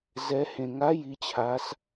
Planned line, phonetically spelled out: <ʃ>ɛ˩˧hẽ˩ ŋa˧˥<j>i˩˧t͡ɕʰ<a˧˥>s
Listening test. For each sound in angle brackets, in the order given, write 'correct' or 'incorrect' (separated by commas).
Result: incorrect, correct, incorrect